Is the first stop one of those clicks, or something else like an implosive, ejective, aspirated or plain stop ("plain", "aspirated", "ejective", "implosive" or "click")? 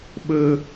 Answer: implosive